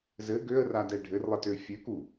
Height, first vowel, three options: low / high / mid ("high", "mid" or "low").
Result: mid